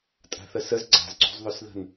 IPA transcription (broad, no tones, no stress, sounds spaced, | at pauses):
tʼ a̤ θ ə s ə z ɡ͡ǀ a̤ z ǀ ṳ z ðˤ ø s ð ə̤ n